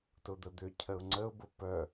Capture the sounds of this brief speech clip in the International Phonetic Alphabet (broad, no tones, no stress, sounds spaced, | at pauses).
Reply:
t ʊ d̪ ə d̪ ʏ cʰ ə ʊ̯ ŋ͡ǀ ə ʊ̯ b ʊ p œ